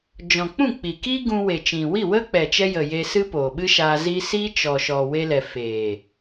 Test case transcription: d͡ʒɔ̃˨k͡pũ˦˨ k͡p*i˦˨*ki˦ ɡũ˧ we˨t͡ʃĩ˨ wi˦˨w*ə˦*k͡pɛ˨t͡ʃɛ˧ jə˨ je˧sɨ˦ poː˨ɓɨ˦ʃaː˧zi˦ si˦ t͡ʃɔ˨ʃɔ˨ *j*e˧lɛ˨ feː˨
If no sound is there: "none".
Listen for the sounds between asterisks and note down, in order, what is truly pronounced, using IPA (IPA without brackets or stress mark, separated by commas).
i˨, ə˦, w